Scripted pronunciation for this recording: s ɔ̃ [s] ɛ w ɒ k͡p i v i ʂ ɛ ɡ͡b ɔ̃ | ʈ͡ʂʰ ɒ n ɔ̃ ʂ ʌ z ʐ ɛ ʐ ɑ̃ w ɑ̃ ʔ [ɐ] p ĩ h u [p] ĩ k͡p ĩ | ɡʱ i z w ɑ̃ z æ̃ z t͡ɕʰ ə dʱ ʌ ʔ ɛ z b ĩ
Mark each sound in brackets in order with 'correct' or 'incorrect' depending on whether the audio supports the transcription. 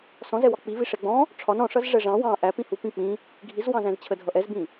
incorrect: z, incorrect: æ, correct

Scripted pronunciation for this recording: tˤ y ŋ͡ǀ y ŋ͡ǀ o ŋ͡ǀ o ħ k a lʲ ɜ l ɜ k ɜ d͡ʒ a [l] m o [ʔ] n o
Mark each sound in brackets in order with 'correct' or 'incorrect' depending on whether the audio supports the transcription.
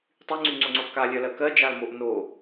correct, correct

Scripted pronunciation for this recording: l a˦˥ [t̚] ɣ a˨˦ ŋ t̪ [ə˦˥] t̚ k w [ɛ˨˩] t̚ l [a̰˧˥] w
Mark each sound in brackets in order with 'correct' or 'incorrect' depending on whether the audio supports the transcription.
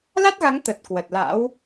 correct, incorrect: ə˨˩, incorrect: ə˨˩, correct

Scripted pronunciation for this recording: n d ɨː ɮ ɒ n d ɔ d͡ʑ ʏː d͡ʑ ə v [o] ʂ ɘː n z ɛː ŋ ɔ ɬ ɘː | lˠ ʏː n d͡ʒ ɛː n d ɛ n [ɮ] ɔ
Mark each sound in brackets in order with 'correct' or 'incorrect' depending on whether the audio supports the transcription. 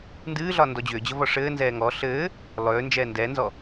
incorrect: ɔ, incorrect: z

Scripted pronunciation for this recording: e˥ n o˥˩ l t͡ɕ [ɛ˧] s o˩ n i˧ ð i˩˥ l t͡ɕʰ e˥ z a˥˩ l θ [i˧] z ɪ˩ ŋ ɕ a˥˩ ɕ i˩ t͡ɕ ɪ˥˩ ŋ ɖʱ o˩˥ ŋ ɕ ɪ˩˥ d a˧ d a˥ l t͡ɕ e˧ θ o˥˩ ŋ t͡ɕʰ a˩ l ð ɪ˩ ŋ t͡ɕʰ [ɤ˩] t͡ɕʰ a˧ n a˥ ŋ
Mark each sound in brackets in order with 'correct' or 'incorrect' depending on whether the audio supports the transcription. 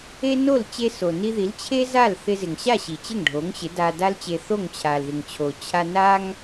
incorrect: e˧, incorrect: ɪ˧, incorrect: o˩

